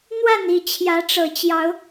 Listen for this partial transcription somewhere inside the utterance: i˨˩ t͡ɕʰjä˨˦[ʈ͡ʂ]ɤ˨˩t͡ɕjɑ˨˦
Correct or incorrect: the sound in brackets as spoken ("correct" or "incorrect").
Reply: correct